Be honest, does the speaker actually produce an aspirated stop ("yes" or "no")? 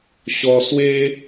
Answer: no